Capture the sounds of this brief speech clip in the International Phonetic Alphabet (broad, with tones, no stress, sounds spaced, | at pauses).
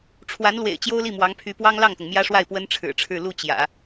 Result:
ʈ͡ʂʰ w a˧˥ n l w ḛ˨˩ ɪ̯ t͡ɕ j o˥ ʊ̯ l i˥˩ m w ɑ˧˥ ŋ pʰ y˧˥ p w ɑ˥ ŋ l ɑ˥˩ ŋ t̪ ʊ˩ ŋ m j ä˥ ʂ w a˥˩ ɪ̯ p w ə˥ n ʈ͡ʂʰ ɻ̩˨˩ ʈ͡ʂʰ ɻ̩˥˧ l u˥˩ t͡ɕ j ä̰˨˩˦